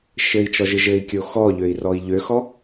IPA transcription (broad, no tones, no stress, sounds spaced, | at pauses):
ʃ ɘ i̯ t͡ʃ ɔ ʒ ɘ ʒ ɘ i̯ kʲ o x ɔ ʎ ø i̯ r ɔ i̯ ʎ ø x ɔ